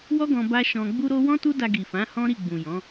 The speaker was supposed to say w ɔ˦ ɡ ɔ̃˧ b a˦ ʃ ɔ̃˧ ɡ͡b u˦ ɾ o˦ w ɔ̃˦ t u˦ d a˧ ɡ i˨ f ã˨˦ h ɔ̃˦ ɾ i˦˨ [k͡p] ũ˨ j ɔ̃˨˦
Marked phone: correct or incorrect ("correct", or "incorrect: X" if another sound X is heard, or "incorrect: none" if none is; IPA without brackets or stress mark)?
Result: incorrect: ɡ͡b